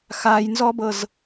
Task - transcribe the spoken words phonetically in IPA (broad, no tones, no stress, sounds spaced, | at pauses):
x a j n z ɔ b ɤ z